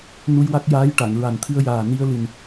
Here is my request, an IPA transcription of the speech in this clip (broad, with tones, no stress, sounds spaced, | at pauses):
n u˧ j w a˦˥ k̚ j aː˧˥ j ʈ a˨˩˨ ŋ ɹ a˨˩ n t̪ʰ ɨ˧ ə̯ j aː˨˩ n i˧ ə̯ l ɨ˨˩ n